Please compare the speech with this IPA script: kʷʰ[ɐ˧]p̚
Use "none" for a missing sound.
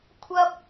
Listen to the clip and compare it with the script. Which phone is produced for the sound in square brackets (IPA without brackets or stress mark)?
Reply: ɐ˥